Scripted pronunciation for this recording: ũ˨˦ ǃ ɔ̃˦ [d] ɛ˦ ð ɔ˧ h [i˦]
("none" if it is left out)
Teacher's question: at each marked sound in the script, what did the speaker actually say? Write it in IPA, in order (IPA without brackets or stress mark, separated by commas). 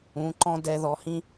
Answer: d, ĩ˦